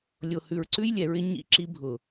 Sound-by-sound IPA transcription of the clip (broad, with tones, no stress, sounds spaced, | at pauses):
lʲ o˨ h ʉ˨ ɹ ǀ ʉ˦ j lʲ ɛ˨ ɹ ɪ˦ ɲ ḭ˦˨ ǁ i˦ bʱ ʊ˨